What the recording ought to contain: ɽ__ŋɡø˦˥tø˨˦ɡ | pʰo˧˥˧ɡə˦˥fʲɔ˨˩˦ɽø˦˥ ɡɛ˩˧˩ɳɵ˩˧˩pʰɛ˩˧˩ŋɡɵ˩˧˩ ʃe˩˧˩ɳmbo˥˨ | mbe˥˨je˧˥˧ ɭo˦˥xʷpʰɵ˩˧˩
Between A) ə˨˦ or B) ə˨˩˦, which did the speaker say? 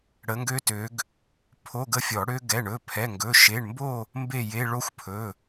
A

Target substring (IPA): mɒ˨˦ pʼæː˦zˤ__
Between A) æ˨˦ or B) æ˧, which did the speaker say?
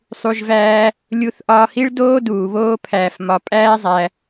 B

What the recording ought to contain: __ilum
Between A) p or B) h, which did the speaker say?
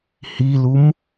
B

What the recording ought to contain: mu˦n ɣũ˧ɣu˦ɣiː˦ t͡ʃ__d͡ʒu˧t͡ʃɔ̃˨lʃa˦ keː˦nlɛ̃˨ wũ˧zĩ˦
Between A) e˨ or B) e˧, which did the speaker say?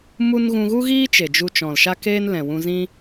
A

